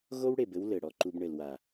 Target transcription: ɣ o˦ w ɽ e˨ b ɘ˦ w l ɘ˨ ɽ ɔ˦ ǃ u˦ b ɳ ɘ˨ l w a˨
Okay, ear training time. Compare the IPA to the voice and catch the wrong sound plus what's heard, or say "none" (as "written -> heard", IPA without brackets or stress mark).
none